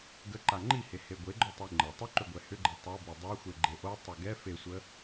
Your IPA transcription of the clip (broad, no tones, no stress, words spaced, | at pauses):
ɡə ǃaŋ͡ǃihe heɡʷeɡ͡ǃo tˤiŋ͡ǃə tˤʏǃʏɡʷɛ hʏɡ͡ǃe tˤobe dˤaxʷe ɡ͡ǃeʔo tˤoɡɛ fesʷə